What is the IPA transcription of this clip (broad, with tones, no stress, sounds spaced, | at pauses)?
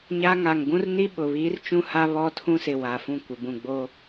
ɲ a˦ ŋ a˨ ŋ ɡ ũ˦ r n i˦ ɓ ʊ˨ β iː˦ r t͡ʃ ũ˦ h a˦ β ɔ˦ tʰ ũ˦ s ɪ˨ w a˨ f ũ˦˨ kʷ ɪ˨ b ũ˨ ɡ͡b o˦